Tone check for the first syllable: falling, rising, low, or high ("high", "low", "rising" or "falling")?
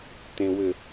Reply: low